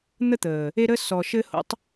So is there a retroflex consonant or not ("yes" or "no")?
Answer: no